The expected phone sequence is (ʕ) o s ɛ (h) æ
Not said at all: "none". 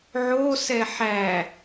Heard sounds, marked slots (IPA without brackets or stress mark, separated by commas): ʕ, ħ